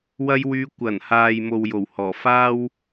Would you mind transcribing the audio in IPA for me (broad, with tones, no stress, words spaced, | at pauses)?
wɐ˧jwyː˨˧ kʷɐ˨˩n haː˨jmo˨w jo˨˩whɔː˨˩ faː˥w